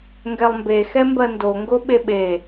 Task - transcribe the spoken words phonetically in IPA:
ŋ ɡ ɛ lˠ m b e x ɛ m b ɜ n d o ŋ ɡ o ɓ e ɓ e

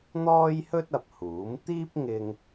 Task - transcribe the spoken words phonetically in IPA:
n̪ ɔː˥ j h ɵ˥ t̚ ɐ˨ p̚ h uː˨˥ m t̪ iː˥ p̚ ŋ ɪ˧ ŋ

